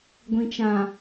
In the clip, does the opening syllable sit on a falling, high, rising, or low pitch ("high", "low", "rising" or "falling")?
low